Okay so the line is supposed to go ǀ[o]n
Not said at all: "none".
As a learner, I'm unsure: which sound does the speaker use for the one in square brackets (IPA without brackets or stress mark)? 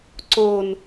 o